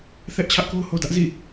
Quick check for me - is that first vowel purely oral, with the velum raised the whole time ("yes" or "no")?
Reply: yes